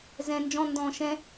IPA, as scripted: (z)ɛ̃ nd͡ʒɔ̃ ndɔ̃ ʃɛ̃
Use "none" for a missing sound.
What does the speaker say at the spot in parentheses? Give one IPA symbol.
z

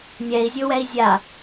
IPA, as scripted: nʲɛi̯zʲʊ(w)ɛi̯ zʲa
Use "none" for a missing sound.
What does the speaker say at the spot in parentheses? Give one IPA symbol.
w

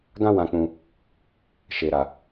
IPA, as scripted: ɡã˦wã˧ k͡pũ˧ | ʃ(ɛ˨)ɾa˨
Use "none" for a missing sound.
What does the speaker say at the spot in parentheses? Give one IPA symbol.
e˨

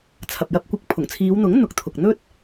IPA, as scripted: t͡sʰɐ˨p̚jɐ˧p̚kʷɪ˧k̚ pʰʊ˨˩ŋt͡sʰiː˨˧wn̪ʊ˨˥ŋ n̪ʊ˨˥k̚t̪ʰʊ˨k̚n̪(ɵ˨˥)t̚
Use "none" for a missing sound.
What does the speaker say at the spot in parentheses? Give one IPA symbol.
ɵ˥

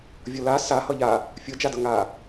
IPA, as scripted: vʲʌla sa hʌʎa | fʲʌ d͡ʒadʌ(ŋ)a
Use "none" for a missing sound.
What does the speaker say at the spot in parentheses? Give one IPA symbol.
ŋ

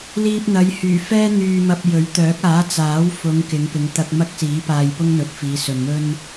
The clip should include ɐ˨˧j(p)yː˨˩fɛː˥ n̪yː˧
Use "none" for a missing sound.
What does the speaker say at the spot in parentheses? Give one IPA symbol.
h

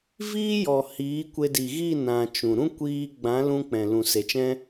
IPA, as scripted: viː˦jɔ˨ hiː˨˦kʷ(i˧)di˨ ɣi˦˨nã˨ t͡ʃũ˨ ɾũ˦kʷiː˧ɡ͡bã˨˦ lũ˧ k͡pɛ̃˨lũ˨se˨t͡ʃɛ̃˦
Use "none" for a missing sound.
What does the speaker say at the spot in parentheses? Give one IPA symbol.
e˧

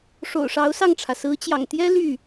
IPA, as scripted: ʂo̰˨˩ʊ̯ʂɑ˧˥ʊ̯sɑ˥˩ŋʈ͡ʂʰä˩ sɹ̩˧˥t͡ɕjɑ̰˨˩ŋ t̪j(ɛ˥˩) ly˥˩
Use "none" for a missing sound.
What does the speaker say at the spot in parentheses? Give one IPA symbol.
ɛ˥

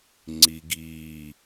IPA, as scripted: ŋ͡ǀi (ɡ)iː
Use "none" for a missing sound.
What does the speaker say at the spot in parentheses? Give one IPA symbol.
ɡ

